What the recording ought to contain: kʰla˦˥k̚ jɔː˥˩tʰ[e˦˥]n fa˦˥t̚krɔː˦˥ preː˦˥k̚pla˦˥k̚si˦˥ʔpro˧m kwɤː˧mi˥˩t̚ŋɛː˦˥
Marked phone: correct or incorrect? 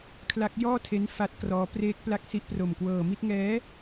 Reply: correct